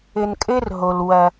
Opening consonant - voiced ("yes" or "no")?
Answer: yes